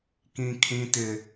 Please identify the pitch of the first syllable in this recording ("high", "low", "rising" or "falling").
high